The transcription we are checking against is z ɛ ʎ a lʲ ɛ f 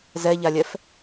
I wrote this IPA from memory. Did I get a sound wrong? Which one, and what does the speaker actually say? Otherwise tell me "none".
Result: none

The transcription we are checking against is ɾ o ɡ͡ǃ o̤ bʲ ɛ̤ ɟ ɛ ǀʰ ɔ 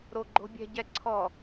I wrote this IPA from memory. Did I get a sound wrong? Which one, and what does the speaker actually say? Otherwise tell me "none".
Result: none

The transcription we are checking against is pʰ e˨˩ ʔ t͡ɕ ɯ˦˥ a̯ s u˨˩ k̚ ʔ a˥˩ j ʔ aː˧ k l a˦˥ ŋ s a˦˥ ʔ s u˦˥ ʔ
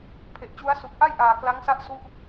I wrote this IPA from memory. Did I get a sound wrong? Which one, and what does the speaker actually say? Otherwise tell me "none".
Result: ɯ˦˥ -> u˦˥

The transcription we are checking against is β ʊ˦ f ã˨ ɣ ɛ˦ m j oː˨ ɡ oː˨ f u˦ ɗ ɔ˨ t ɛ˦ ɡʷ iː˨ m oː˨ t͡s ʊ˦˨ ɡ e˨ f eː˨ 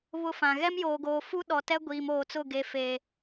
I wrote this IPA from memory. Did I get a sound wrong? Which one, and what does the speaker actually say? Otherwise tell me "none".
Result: none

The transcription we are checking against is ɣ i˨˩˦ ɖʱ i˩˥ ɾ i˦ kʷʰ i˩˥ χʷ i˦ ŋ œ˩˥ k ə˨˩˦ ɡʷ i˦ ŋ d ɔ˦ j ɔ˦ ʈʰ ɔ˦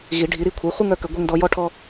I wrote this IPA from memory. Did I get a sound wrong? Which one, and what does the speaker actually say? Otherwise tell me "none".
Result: none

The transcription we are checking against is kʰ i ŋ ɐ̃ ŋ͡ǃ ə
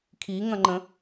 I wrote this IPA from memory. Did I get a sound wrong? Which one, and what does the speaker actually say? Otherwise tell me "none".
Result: ə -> ə̃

